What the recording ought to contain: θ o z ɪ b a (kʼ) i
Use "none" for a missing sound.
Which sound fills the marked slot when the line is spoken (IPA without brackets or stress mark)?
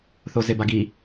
ɡ